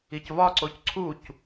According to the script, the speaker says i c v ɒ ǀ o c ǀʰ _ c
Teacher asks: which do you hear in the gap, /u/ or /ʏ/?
u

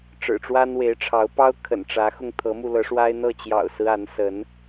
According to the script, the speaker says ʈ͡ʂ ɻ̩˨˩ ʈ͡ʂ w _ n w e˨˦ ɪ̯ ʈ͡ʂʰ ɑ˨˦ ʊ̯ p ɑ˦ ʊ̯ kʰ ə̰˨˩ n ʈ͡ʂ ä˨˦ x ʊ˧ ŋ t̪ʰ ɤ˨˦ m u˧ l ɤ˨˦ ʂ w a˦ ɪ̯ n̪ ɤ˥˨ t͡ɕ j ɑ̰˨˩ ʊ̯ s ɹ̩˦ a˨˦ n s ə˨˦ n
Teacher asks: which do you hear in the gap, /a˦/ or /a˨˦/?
a˦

